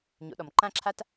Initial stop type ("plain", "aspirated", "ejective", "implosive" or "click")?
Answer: implosive